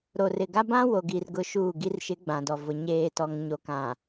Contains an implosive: no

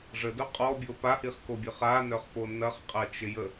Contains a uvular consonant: yes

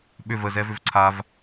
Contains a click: yes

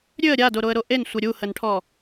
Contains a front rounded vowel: yes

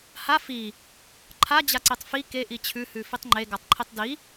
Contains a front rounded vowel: no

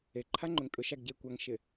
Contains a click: yes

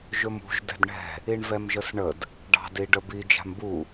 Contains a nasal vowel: no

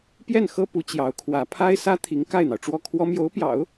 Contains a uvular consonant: no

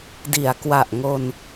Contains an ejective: no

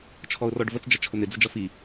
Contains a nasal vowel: no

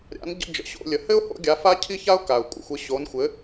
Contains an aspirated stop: yes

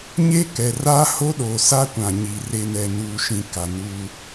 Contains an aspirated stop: no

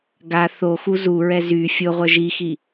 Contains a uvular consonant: yes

